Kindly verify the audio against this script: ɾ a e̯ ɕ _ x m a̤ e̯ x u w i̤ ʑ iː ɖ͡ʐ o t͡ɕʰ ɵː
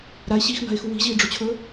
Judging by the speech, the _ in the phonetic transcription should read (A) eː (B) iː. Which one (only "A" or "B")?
B